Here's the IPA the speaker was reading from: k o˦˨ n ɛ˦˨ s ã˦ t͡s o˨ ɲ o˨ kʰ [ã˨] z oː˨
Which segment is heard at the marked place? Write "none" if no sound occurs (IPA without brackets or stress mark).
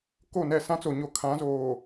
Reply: ã˨˦